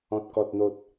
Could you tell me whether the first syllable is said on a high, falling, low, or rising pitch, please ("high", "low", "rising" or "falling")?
low